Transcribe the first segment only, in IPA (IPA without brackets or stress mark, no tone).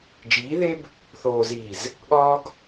d͡ʒ